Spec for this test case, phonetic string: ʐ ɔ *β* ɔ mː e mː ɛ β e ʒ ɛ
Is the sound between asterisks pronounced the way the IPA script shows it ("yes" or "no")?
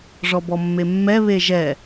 no